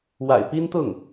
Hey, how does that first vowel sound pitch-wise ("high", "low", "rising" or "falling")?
low